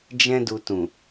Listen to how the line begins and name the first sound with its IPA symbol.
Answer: d͡ʒ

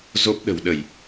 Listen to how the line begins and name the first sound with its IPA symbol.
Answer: z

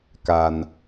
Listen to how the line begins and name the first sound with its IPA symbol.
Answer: k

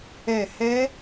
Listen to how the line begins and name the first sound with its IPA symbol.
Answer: ɛ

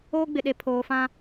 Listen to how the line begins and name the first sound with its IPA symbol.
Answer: oː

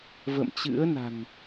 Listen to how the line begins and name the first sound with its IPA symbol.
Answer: v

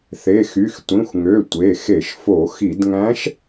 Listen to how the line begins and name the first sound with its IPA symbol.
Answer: θ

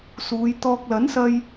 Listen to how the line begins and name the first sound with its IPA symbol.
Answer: s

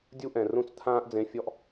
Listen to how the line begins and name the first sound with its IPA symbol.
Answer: dʲ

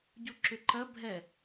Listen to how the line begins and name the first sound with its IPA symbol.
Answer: ɟ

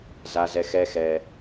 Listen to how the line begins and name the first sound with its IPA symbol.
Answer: z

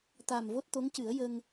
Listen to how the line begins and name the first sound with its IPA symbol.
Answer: t̪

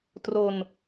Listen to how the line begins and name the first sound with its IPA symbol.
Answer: t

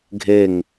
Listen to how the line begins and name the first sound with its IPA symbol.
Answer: ɡʱ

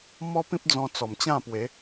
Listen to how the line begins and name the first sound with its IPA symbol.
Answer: m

